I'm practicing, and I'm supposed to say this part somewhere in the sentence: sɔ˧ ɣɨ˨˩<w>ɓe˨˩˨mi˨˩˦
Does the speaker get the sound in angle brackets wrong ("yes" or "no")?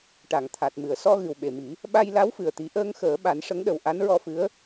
no